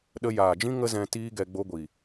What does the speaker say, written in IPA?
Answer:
ɗə˧ jaː˨d͡ʒĩ˦ ŋə˦zɛ̃˧ tiː˦ɡɛ˧ ɡ͡bo˧ɡʷi˨

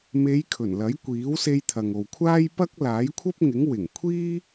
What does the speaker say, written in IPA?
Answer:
me˨˧j kʰɵ˨˩nlɐ˨˥jkʷiː˨˥wse˧j t̪ʰɐ˨ŋo˨wkʷʰaː˥j pɐ˥k̚ laː˨˥jkʷʰɐ˥p̚ŋɪ˨˥ŋ wɪ˨˩ŋkʷʰiː˥

